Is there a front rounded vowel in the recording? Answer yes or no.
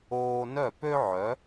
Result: yes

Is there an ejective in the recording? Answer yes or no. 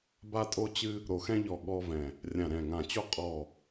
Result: yes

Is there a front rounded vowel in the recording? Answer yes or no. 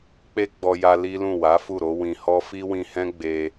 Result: no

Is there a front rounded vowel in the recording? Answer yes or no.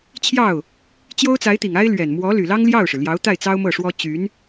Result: yes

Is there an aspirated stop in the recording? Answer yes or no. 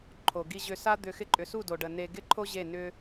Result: yes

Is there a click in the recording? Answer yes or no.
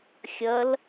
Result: no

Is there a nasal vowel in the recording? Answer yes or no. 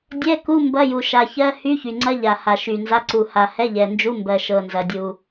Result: no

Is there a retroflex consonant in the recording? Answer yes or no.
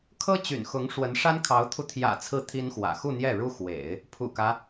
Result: yes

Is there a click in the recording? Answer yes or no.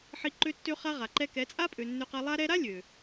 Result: yes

